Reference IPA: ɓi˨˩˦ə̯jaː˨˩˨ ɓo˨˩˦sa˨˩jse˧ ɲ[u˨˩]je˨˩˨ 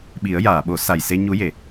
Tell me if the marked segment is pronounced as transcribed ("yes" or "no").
no